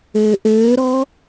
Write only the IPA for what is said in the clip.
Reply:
øː ʔ øː ɾ ɔː

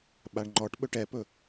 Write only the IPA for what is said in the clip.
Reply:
ɓ a ɳ ŋ͡ǃ ɔ ʈ ɓ ɵ ʈ ɛ p ɵ

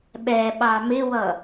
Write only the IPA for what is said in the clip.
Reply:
ɓ ɛ ɓ ɑ m ɪ w ʌ

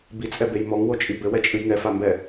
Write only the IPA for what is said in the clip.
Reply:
b i t͡sʼ ɛ b e j m ɔ ŋ w o t͡ʃʼ i b ɘ w ɛ t͡ʃʼ ɨ j ŋ ɛ f a m b ɛ

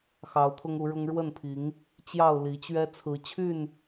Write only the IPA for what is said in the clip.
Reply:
x ɑ˨˦ ʊ̯ t̪ʰ ʊ˦ ŋ u˨˦ ɻ ʊ˦ ŋ ɻ w ə˥˨ n pʰ i˨˦ ŋ | t͡ɕ j ɑ˥˨ ʊ̯ l i˨˦ t͡ɕ ɥ ɛ˦ t͡sʰ ɹ̩˨˦ t͡ɕʰ y˥˨ n

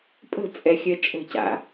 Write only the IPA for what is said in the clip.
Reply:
pʼ ə̤ t͡sʼ ɛ xʲ œ t͡ʃʼ ə̤ c a̰

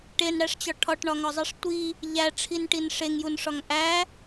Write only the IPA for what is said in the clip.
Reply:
ʈ e n ɽ æ ʂ t͡ɕ ɒ ʈʰ ɒ ʈ ɳ ɒ ŋ ɒ zˤ i ʂ tʷ i | ʎ æ ʈ͡ʂʰ i n ʈ i n ʂ e ŋ j u n ʂ ɒ ŋ ʔ æ

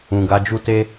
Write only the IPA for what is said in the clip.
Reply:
ũ˨ ɡ a˨˦ d͡ʒ u˦ t e˦

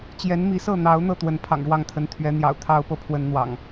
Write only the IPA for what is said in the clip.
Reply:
t͡ɕ j ɛ˨˦ n m i˨˦ s ɤ˥˨ n̪ ɑ˨˦ ʊ̯ n̪ ɤ˥˨ t̪ w ə˨˦ n pʰ ɑ̰˨˩ ŋ ɻ w ɑ˥˨ ŋ t̪ʰ ə˨˦ n t̪ʰ ɥ ɛ˨˦ n̪ j ɑ̰˨˩ ʊ̯ t̪ʰ ɑ˦ ʊ̯ p ɤ˨ pʰ w ə˦ n n̪ w ɑ̰˨˩ ŋ

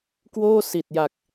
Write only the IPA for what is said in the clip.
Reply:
k w oː˥˩ s i˨˩ t̚ j a˨˩ k̚

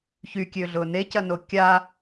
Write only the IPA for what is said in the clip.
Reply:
ç y kʲ ø ɮ ʊ n e c ɐ n o kʲ a

